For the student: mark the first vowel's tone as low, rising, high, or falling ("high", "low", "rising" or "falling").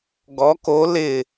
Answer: rising